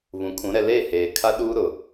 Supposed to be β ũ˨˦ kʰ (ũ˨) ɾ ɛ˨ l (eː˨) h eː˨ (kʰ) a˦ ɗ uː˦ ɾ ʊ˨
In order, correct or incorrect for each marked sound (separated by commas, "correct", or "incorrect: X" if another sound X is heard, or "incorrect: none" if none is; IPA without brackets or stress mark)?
incorrect: ũ˨˦, incorrect: eː˦˨, correct